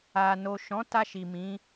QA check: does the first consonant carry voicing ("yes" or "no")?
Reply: yes